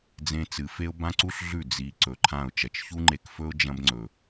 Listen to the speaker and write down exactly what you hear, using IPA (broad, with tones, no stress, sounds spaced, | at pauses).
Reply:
d͡z ẽ˧ t͡s ɨ˨ f e˦ ʊ̯ b ã˦ ǀ u˦ ɬ ɮ ʉ˦˨ d͡z i˨ ǀ ɵ˨ ǃʰ ã˦˨ ʊ̯ t͡ʃ ɐ˨ t͡ʃ ç u˦ ŋ͡ǃ e˧ k f ɵ˦ ʊ̯ d͡ʒ ɐ̃˦ b ŋ͡ǀ ɵ˨